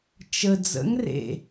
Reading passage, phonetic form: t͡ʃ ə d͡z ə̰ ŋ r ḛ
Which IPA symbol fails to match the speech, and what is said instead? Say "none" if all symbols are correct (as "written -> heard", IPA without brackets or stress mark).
none